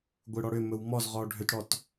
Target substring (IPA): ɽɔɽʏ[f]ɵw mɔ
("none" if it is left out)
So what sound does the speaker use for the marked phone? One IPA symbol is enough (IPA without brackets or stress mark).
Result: m